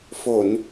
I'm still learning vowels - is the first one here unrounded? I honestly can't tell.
no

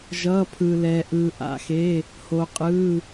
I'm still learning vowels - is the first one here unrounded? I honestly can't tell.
yes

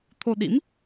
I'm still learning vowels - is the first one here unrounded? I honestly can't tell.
no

